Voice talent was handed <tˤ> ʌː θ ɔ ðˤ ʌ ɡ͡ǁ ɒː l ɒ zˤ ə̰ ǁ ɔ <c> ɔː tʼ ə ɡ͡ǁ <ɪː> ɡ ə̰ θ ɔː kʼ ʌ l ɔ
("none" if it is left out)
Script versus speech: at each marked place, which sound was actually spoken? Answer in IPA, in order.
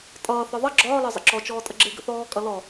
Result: tʼ, t͡ʃ, ɪː

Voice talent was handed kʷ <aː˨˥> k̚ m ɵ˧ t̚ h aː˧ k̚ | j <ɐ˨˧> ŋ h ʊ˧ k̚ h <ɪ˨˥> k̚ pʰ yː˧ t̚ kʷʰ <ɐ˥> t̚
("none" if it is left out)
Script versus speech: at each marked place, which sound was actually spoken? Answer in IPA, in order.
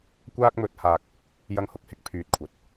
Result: aː˥, ɐ˧, ɪ˧, ɐ˨˥

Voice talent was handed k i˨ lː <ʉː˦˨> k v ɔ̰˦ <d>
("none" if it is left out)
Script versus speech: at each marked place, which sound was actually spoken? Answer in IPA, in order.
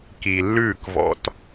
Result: ʉː˦˨, t

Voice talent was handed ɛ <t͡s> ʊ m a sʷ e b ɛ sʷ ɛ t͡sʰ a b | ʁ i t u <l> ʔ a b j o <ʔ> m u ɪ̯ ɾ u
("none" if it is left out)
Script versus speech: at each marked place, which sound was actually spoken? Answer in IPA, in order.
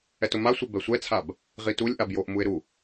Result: t, lʲ, ʔ

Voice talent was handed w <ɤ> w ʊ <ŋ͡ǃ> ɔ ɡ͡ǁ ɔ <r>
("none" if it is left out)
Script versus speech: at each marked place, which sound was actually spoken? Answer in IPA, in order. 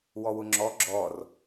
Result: ɔ, ŋ͡ǁ, r

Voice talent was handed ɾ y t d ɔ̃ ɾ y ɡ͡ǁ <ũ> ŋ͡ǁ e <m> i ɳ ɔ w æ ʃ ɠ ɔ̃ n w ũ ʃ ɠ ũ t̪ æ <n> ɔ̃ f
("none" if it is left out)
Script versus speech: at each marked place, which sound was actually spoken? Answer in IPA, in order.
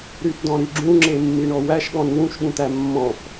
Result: ũ, mː, mː

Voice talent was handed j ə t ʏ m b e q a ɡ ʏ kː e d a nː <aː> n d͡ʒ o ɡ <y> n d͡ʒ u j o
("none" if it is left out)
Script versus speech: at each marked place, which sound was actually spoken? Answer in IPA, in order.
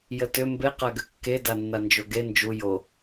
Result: a, e

